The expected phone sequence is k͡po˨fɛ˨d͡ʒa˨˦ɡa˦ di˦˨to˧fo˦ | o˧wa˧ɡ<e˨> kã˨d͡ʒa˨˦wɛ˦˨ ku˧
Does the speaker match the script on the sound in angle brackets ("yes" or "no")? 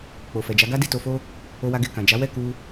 yes